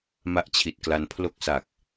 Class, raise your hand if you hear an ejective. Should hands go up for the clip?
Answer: no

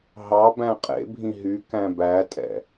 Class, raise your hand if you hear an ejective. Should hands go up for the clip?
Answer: yes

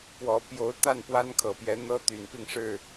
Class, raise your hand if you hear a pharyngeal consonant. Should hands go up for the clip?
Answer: no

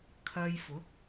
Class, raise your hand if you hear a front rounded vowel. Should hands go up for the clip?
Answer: no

